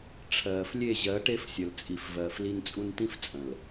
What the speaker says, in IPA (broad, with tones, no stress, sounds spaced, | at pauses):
ʈ͡ʂʰ ɜː˨ f lʲ e˦˨ ʑ ɜ˨˦ ʈ e˦ f sʲ ə˨ l t͡sʼ i˨ f v ɜː˨ f l i˦ n t͡sʼ u˦ n t̪ ĩ˦ f t͡sʼ ə̃˨ l